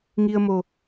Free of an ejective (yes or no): yes